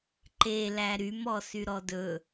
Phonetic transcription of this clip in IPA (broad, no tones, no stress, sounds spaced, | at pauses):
ǃ e l æ ɾ y m ɔ s y ɾ ɔ d ɵ